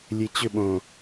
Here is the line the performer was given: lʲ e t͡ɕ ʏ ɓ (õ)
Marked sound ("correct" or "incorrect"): correct